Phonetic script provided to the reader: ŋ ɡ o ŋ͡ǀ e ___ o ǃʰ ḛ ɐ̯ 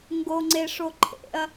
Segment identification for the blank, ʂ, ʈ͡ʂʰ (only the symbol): ʂ